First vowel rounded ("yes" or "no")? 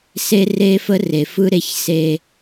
no